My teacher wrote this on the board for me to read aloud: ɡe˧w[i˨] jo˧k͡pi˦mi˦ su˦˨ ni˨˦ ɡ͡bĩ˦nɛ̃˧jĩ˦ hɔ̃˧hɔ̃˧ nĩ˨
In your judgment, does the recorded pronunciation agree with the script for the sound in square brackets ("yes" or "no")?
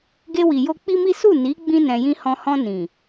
yes